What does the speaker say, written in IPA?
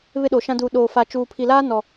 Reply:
β ɪ˦ ɗ o˨ ʃ ã˦ d uː˨ ɗ oː˨ f a˨ t͡ʃ uː˨ pʰ i˨ l aː˦ n ɔ˨

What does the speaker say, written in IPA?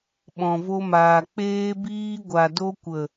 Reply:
ɓ ɔ̃˨ v o˧ m aː˨ k͡p eː˧ b iː˧ ɡʷ a˨ d o˧ kʷ ə˨

